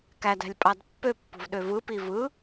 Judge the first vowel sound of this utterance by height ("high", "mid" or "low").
low